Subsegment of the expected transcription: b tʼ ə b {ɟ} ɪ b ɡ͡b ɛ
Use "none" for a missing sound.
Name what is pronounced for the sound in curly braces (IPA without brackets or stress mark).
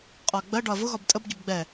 ɟ